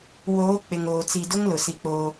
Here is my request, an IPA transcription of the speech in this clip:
w oː˨˦ k͡p ɪ˨ ŋ oː˨ t͡s i˨ d ʊ˦ ŋ l ʊ˨ s i˦ k͡p oː˦

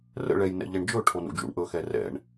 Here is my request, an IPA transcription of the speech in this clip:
r ə̰ ɭ ɛ j n ɛ̰ ʎ ɛ ɳ d͡ʒ ɵ ʈʰ o n ṵ d͡ʒ ṵ ɳ ʔ ɵ x ɛ r ɛ̰ ɳ

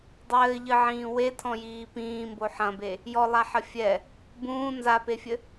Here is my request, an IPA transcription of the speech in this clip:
dˤ ɘː ʎ ɨ ʕ ĩː w e tʰ ɔ̃ j iː p ĩː m b o ħ ɐ̃ b e | j ɔ lˠ a ħ ɐ fʲ ɛ | b ũː n z a p e fʲ ɘ

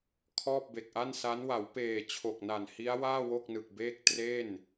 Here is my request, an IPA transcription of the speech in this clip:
kʰ ɔː˥˩ p̚ b e˨˩ k̚ ʔ a˥˩ n s a˦˥ n w a˩˦ w p eː˨˩ t͡ɕʰ o˨˩ k̚ n a˨˩ n h i˦˥ a̯ w aː˥˩ w o˥˩ k̚ n ɯ˨˩ k̚ b eː˥˩ k̚ t r e˥˩ n

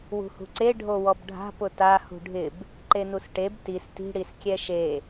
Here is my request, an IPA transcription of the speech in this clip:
w ṳ h ṳ ǀ e ɖʱ o w ɔ b ɖʱ a̤ p ʊ t a h ṳ ɖʱ ɪ b | ǃ e n u s ʈ e b t i s t i̤ ɽ i s kʲ ɛ ʃ e

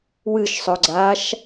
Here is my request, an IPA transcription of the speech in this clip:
w ɨ ʃ sˤ ɵ ɡ͡ǀ aː ʃ

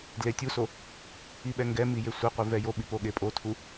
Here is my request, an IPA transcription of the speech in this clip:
d l e tʲ u s o | i ɓ ɛ ŋ ɡ ɛ m i j e sʷ e qʷ i v ɛ j o ɓ i p o ɠ e pʼ o tʰ u

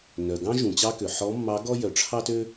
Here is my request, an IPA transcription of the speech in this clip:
n œ˩ ɡ ɑ̃˥ ʒ ũ˩ t͡ɕ ɑ˥ k ø˩ ħ ɔ˧˥ mː ɑ˧˥ ɡ ɔ˥ j œ˩˧ ʈ͡ʂʰ ɑ˥ t ø˥

